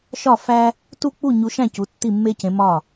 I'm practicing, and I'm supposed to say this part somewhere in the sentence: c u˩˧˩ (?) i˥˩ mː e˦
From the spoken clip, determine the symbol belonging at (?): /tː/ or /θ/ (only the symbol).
tː